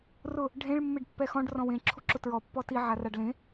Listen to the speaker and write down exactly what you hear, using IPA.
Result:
r ʊ | ɖʱ ẽ ɭ mː e ɖ pː ɛ x ɔ̃ ɖ r ɔ̃ w ẽ ǁʰ u ǁ ʊ t ɹ ɔ pː ɔ t i ʕ a r a ɖ l ẽ

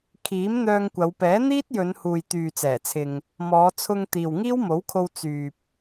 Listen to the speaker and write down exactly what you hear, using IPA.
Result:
kʰ iː˨˥ m n̪ œː˧ ŋ kʷ ɐ˨˧ w p ɛː˨˥ n̪ iː˥ t̚ j ɵ˨˧ n h uː˨ j t̪ yː˨ t͡s ɛː˨˩ t͡sʰ ɪ˨ ŋ | m ɔː˨˧ t͡sʰ ʊ˧ ŋ t̪ iː˨ w ŋ iː˥ w m o˨˥ w kʰ o˧ w t͡s yː˨ p̚

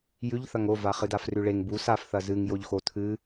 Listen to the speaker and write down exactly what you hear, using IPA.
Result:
j ʉ ʎ θ ɐ ŋ o v a χ ɨ d a f r ʉ ɭ e ŋ b u s a f θ ɐ z ɨ ŋ j o ʎ x o tʰ ɨ

